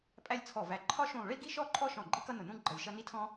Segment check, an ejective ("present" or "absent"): present